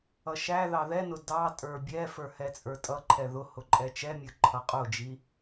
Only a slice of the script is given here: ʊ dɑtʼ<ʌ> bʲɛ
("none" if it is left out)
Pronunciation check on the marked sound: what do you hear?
ə˞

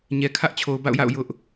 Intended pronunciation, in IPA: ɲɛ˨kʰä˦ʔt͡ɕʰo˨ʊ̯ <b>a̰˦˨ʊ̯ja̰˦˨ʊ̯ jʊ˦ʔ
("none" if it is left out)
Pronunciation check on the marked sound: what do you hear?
b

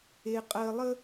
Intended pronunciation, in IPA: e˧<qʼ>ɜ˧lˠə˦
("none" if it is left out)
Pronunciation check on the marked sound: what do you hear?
qʼ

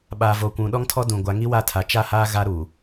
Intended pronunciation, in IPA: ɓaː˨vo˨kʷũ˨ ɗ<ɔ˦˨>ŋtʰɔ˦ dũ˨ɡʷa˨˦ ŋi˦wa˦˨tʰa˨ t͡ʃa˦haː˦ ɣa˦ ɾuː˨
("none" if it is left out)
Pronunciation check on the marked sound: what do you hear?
ɔ˦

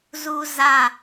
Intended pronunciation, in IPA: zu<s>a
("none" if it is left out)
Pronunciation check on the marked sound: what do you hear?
z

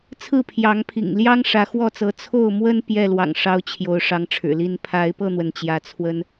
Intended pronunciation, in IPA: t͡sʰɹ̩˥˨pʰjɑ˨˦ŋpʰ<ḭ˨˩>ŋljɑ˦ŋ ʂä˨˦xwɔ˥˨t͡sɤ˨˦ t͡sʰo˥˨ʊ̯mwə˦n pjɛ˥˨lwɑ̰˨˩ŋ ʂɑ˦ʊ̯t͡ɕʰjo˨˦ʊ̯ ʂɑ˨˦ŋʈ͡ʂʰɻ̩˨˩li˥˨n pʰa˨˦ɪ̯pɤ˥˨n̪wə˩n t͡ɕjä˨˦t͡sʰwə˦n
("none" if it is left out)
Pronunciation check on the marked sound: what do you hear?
ḭ˨˩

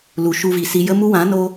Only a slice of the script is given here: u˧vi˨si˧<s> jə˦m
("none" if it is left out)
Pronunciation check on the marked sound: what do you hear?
none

